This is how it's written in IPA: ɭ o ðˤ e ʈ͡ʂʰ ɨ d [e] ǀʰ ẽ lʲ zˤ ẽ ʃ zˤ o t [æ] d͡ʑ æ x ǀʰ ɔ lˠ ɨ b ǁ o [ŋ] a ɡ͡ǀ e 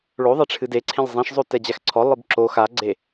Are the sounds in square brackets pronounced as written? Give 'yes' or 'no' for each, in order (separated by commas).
yes, no, no